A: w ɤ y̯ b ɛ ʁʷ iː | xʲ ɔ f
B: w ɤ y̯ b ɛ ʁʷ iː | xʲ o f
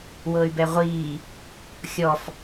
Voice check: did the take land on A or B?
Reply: A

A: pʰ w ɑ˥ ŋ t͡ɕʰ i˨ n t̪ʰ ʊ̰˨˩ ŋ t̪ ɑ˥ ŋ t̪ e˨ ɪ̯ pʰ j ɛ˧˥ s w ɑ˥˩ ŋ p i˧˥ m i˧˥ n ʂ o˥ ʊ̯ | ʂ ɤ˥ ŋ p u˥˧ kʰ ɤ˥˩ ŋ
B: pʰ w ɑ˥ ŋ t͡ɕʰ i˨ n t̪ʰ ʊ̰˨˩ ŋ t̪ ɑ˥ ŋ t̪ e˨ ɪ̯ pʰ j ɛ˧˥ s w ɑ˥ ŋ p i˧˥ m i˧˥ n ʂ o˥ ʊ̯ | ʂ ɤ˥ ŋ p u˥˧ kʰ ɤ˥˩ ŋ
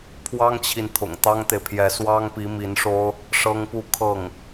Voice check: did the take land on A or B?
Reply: B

